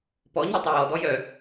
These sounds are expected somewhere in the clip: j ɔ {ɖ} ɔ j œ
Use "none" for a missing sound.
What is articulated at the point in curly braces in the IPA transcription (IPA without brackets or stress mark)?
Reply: d